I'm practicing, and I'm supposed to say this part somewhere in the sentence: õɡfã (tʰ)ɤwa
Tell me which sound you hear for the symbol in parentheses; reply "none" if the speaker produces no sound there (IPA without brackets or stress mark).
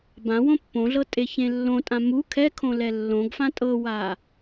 tʼ